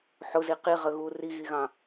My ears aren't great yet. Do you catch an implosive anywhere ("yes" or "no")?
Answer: no